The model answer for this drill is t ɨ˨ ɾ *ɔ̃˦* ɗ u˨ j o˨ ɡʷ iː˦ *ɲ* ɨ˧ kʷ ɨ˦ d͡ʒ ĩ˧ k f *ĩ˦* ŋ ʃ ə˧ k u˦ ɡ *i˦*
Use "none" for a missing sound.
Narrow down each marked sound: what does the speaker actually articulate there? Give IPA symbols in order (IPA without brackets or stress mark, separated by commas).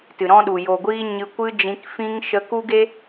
ɔ̃˦, ɲ, ĩ˦, e˦